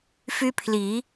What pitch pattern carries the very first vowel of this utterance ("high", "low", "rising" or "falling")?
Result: high